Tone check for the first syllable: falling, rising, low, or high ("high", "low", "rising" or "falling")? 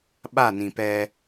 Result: falling